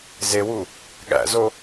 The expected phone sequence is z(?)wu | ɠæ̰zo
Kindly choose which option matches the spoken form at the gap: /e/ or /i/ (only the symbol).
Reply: e